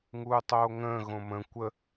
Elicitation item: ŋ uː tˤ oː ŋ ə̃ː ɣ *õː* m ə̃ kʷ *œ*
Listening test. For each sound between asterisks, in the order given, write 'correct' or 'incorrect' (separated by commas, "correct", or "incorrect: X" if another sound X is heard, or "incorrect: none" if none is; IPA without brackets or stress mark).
incorrect: õ, incorrect: ə